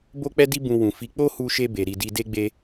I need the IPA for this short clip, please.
bo˦k͡pɛ˦di˦ bũ˧wũ˨fi˨˦ k͡po˦hu˧ʃe˧ be˨ ɾi˨ di˧de˦ ɡ͡be˦

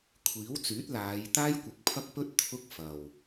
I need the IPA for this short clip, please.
kʷʰiː˨˥wt͡syː˨˥t̚ laː˨˧j t̪aː˥jkʷɪ˨k̚pʰɐ˥k̚pɵ˥t̚ t̪ʰʊ˥k̚fɐ˨w

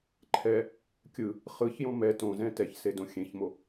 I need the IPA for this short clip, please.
ǃʰɛ | kʲɯ | χɯçjõ mɛ tõzɛ̃ tɛçsedõ xʲẽçmo

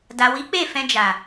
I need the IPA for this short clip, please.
da˨wi˨˦k͡pe˦˨fɛ̃˧ d͡ʒa˨

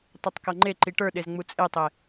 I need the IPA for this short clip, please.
tˤutˤkʌŋ͡ǃe ǃiʈə˞ɗezŋ͡mu t͡sʼetˤe

